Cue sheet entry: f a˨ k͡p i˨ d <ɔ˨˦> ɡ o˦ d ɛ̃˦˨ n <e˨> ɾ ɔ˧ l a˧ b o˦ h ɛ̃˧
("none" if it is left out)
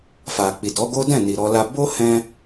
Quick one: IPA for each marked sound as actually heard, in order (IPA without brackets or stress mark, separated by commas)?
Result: ɔ˨˦, i˨